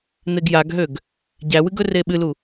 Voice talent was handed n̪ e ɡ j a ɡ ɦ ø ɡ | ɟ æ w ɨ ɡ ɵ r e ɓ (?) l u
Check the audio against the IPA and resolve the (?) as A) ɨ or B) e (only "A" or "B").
A